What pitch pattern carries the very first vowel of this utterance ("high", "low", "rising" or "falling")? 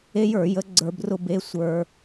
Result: high